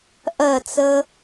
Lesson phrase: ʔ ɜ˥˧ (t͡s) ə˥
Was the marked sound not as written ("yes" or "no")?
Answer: no